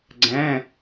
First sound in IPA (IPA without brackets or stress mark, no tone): ɡ͡ǀ